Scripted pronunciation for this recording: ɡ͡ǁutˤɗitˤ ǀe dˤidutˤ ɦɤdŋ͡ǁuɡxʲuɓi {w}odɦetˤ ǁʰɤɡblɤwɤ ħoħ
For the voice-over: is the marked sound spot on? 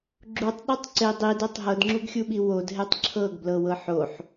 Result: yes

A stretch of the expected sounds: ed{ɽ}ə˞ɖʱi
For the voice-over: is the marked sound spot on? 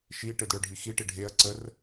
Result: yes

